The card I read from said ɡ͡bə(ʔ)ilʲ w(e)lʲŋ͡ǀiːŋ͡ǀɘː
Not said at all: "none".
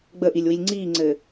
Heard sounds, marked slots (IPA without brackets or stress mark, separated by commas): ʔ, i